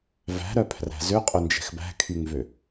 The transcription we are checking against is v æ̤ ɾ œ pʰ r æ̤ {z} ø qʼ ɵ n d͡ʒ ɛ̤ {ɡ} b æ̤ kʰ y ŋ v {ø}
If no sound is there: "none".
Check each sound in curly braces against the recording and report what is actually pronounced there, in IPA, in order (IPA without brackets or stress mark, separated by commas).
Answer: z, x, ø